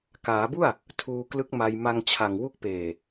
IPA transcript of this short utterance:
k aː˩˦ b u˥˩ a̯ | tʰ uː˧ k l ɯ˦˥ k̚ m a˧ j m a˧ ŋ t͡ɕʰ a˨˩ ŋ w u˦˥ k̚ p eː˨˩

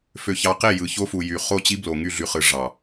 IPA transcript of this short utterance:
f ø˨ ç ɑ˨ q e˦˨ j ɯ˨ ç o˦ f u˨ j y˨ χ o˦˨ t͡ɕ i˦ b l o˨ ŋ y˦˨ ɮ y˨ χ ɯ˨ ʐ ɑ˨

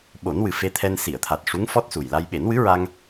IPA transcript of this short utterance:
ɓ o˨˩˦ n w ɨ˨˩ f e˧ t̪ʰ ɛ˧ n s i˨˩˨ ə̯ t̪ʰ a˨˩ t̚ ʂ u˧˥ ŋ f ɔ˦˥ t̚ s u˨˩ j l a˧ j ɓ e˨˩˦ n w ɨ˧˥ ɹ a˧ ŋ

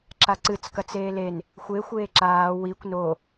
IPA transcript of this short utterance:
ǁ a ǀ ɨ t͡s k ɐ t͡s eː l e n | xʷ e xʷ eː ǁ aː w i kʷ n o

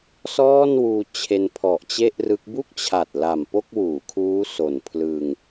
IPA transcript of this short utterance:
s ɔː˥˩ n w uː˧ t͡ɕʰ e˧ n pʰ ɔ˨˩ ʔ t͡ɕ e˥˩ ʔ r ɯ˦˥ k̚ b u˥˩ k̚ t͡ɕʰ a˨˩ t̚ l a˨˩ m p o˥˩ k̚ w uː˩˦ kʰ uː˦˥ s o˨˩ n pʰ l ɯ˧ ŋ

